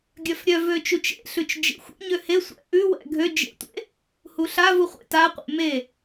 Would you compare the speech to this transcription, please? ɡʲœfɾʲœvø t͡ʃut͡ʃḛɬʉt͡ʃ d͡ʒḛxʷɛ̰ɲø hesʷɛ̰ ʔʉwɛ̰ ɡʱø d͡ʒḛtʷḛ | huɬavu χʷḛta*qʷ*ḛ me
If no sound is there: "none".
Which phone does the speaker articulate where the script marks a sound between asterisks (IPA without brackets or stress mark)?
qʷ